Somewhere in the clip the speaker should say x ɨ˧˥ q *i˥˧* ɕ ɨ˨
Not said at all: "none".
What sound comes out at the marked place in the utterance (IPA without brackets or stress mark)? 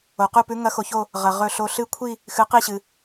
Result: i˥˧